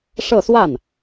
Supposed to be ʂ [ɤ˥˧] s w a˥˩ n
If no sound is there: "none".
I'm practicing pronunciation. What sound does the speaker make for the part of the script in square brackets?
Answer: ɤ˥˧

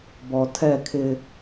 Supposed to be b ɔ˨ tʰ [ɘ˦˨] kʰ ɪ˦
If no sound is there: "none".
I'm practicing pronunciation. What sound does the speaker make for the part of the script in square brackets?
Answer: ɛ˦˨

